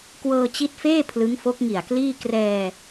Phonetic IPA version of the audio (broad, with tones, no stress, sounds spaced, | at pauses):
k w ɤː˧ t͡ɕ i˦˥ t̚ f eː˥˩ pʰ l ɯ˦˥ ŋ f o˦˥ k̚ ŋ i˨˩ a̯ k l iː˥˩ k r ɛː˧